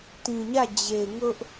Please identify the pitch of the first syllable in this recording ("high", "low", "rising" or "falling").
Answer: low